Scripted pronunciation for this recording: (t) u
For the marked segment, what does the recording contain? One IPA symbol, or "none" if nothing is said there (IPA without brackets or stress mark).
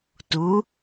t